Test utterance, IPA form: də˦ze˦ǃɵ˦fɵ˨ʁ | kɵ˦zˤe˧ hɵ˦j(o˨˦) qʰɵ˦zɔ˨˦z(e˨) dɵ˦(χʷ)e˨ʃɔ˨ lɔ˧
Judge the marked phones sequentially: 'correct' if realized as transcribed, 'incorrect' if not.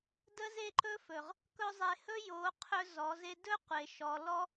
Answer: correct, incorrect, incorrect

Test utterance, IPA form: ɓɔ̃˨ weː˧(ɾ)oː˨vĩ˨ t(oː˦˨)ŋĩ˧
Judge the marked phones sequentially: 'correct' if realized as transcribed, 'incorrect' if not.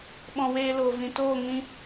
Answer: incorrect, correct

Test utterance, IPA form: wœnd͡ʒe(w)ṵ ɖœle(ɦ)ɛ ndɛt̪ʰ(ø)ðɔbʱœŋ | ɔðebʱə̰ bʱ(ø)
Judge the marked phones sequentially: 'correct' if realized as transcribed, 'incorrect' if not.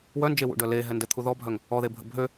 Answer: correct, correct, incorrect, correct

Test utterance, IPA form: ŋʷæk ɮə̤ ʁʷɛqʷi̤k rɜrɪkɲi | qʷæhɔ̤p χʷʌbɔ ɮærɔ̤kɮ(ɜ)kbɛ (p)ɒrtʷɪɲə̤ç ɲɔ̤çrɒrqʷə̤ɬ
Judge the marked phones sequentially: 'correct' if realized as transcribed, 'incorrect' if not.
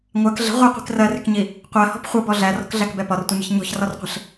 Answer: incorrect, correct

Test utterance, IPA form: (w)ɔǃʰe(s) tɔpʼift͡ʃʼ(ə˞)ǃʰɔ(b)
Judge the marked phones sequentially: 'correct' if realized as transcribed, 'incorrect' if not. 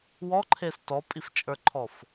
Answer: correct, correct, correct, incorrect

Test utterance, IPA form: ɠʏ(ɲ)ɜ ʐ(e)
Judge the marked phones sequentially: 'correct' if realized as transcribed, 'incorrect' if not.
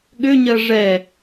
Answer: correct, incorrect

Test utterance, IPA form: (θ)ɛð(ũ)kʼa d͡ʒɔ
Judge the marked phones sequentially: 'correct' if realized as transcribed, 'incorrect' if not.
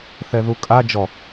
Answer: correct, incorrect

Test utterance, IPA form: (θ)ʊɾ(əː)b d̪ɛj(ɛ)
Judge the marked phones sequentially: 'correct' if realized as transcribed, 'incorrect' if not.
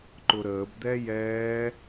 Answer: incorrect, correct, incorrect

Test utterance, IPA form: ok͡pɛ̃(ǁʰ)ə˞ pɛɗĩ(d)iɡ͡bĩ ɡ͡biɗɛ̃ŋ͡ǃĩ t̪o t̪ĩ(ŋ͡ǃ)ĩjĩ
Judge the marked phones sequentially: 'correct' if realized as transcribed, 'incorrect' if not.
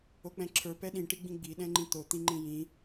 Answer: correct, incorrect, correct

